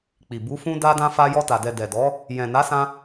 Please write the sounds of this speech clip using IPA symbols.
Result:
k͡p i˨ b u˨˦ f ũ˧ d a˧ d ã˧ f a˧ j ɔ˧ t a˨ d ɛ˨ d ɛ˨ d ɔ˨˦ | j ɛ̃˨ n a˨˦ s ã˧

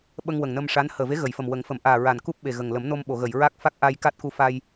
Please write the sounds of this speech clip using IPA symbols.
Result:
ɓ ə˧ ŋ w ə˨˩ ŋ n ə˧ m ʂ a˧˥ n h əː˨˩ v e˧˥ ɣ ə˨˩˨ j f ə˨˩ m w ə˨˩˦ ŋ f ə˨˩˨ m ʔ aː˨˩ ɹ a˨˩ n k u˦˥ p̚ ɓ e˨˩ ɣ ə˨˩ ŋ l ə˨˩˦ m n o˧ m ɓ o˨˩˨ ɣ ə˨˩˨ j ɹ a˦˥ k̚ f a˦˥ k̚ ʔ a˧ j k a˦˥ t̚ k u˧ f a˧ j

